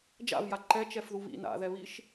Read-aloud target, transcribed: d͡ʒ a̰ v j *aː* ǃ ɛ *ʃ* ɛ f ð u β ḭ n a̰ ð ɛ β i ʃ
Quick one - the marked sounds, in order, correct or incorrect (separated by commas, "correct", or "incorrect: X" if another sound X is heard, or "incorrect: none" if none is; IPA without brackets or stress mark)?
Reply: incorrect: a, incorrect: t͡ʃ